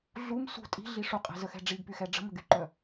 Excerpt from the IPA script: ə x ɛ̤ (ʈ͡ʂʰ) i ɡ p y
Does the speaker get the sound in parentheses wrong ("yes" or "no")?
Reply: yes